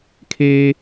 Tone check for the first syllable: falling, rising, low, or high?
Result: high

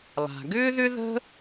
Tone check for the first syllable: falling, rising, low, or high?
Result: low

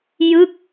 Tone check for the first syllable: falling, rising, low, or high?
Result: falling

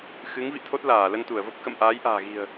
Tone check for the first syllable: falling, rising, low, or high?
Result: rising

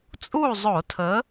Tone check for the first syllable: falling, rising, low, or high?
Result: falling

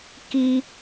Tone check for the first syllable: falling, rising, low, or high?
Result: high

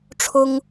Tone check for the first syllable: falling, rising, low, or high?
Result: high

